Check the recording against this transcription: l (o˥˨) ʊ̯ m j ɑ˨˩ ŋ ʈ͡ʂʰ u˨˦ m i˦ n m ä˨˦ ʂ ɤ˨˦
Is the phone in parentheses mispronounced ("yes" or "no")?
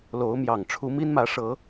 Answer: yes